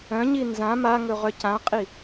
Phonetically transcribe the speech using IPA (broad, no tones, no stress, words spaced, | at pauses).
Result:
œ̃ɲi nzã maŋɵ ʁœcãqʼi